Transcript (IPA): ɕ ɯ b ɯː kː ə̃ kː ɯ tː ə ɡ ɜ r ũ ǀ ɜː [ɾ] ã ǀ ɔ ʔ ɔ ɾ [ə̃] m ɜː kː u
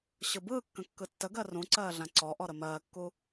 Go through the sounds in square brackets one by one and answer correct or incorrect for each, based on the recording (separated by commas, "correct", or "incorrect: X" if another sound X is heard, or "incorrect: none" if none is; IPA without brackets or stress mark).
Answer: incorrect: ɮ, incorrect: ə